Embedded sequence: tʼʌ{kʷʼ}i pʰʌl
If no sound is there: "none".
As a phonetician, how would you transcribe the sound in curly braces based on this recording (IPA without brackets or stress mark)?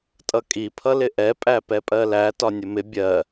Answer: kʼ